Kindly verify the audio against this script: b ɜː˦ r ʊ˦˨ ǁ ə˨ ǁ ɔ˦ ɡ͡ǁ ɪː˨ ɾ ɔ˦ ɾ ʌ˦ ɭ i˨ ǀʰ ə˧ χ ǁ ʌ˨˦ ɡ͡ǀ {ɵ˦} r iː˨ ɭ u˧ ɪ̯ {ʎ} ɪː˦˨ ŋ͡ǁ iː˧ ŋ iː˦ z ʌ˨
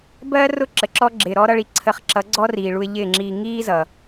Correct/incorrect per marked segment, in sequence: incorrect, correct

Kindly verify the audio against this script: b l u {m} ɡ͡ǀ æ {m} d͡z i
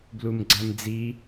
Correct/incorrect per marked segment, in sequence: correct, correct

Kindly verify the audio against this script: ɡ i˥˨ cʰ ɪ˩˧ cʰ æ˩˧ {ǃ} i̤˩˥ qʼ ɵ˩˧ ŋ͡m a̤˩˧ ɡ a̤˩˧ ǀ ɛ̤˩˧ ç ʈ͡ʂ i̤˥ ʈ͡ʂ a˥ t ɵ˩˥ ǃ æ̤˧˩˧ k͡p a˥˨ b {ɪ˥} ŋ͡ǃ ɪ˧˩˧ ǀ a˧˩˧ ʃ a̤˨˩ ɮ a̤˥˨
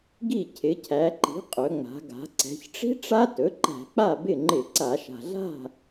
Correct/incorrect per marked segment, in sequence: correct, incorrect

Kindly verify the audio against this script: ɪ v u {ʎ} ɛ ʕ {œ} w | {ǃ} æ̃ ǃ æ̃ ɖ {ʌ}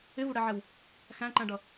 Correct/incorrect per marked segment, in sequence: incorrect, incorrect, incorrect, correct

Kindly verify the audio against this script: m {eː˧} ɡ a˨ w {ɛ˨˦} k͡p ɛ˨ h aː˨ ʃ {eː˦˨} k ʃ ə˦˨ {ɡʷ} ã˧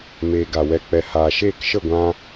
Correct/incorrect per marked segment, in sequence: correct, incorrect, correct, correct

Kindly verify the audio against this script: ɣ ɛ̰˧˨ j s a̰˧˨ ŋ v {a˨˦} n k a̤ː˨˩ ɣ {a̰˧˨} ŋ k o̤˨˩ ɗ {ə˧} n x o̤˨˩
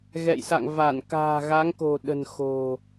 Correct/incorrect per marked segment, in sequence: incorrect, incorrect, incorrect

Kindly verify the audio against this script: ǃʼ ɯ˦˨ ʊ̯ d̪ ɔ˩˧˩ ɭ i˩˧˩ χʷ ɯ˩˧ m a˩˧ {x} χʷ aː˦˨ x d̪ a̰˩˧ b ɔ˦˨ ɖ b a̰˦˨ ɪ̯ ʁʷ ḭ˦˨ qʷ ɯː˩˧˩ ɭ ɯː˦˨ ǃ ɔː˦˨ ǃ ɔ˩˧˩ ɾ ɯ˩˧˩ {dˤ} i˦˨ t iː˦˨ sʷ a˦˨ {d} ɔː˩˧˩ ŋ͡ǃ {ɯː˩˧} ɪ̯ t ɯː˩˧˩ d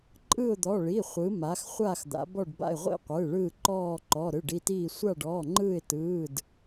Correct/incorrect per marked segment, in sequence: correct, incorrect, incorrect, incorrect

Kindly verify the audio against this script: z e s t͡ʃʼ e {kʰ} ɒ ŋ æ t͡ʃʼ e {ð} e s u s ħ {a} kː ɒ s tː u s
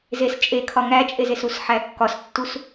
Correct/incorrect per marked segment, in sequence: correct, incorrect, incorrect

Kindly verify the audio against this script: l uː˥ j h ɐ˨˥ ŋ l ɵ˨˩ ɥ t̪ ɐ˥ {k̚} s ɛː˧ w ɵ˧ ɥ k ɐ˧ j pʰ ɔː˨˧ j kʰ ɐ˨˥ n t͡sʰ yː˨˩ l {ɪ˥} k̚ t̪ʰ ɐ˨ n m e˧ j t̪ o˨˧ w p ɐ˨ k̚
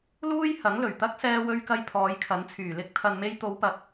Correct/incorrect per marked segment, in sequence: correct, correct

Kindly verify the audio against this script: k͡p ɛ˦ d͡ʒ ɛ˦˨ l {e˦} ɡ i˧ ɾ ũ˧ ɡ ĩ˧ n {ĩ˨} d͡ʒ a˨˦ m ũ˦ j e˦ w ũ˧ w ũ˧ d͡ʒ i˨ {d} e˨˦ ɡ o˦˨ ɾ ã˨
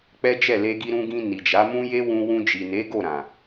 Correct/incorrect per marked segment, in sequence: incorrect, incorrect, incorrect

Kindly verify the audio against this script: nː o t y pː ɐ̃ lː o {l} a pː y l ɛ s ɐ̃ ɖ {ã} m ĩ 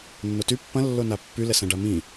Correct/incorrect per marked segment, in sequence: incorrect, incorrect

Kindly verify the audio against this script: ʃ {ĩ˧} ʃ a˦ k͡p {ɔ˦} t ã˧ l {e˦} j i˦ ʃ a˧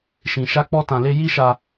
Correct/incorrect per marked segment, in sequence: correct, correct, correct

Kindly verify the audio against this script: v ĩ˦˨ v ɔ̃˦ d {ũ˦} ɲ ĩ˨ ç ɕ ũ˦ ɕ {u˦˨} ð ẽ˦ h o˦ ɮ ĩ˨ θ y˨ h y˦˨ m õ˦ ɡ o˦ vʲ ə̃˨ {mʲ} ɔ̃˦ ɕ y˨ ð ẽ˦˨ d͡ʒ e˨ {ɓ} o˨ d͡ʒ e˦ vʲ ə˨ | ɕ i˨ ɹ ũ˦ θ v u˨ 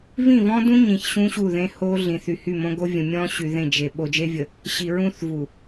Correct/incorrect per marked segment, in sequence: correct, correct, correct, correct

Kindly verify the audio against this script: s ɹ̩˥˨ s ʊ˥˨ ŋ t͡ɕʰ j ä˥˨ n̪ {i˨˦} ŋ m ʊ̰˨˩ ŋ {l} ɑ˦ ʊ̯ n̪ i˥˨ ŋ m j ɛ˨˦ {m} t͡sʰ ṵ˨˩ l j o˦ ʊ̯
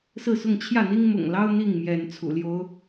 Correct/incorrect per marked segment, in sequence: incorrect, correct, incorrect

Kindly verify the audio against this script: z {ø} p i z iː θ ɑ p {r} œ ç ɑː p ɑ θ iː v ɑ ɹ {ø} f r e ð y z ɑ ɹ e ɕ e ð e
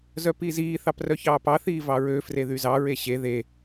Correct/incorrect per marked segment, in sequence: incorrect, correct, correct

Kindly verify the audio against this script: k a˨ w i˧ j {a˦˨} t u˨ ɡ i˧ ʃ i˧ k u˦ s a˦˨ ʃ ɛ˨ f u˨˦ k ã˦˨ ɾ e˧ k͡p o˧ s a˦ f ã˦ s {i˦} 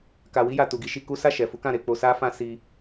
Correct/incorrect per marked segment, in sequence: incorrect, correct

